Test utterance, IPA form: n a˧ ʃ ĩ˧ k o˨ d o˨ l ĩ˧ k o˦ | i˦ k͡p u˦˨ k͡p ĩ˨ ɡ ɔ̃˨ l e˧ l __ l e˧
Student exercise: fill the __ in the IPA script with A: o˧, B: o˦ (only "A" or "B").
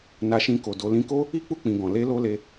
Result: A